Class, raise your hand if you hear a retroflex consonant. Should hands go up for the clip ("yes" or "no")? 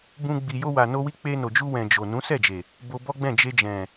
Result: no